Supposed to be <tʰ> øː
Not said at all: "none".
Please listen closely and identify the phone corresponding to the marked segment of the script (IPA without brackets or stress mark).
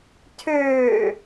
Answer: tʰ